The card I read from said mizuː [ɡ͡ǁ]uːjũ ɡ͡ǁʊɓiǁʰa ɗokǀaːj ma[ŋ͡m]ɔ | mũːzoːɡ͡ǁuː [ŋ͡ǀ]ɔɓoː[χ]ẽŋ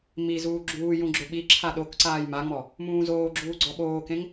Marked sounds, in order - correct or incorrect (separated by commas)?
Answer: correct, correct, incorrect, incorrect